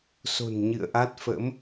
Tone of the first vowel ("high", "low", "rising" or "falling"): low